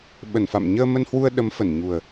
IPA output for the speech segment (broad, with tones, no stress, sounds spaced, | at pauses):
ɓ ə˧˩ n f a̰˧˨ m ɲ əː˧ m ə˧ n h w u˧ ə̯ ɗ ə˨˦ m f ə˧˩ n ɲ u˨˩ ə̯